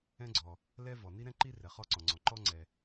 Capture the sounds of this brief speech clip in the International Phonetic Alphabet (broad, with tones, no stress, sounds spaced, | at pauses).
ɛ̃˥ ɡ͡ǀ ɔ˩ | l ɛ˥ v ɔ˩ n i˥ ɾ ɛ̃˥ ǃ i˥ r ɛ˩ χ ɔ˥ ǀ ɔ̃˩ ŋ͡ǀ ɔ̃˩ ǃ ɔ˥ ŋ͡ǀ ɛ˩